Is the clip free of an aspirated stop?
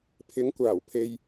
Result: no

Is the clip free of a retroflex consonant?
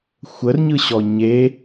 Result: yes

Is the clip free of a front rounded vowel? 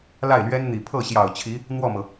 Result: yes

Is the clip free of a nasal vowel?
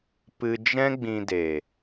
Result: no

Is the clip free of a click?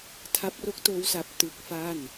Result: yes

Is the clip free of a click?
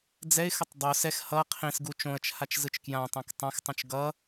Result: yes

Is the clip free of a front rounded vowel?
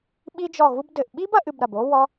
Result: yes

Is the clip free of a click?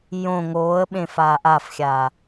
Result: yes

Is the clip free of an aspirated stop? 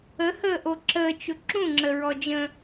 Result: yes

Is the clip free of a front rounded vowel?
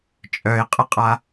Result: no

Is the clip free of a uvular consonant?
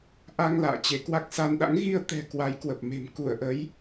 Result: yes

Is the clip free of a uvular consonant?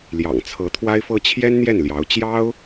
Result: yes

